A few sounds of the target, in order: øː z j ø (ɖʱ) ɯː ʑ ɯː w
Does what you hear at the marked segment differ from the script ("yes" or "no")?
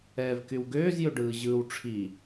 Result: yes